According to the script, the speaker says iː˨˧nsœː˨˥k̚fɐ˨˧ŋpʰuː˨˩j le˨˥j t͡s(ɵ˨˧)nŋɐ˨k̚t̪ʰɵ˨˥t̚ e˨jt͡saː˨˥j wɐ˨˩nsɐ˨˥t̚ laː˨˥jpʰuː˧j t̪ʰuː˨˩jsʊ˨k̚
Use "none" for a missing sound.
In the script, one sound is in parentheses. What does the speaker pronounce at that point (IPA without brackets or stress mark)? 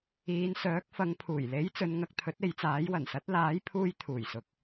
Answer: ɵ˨˧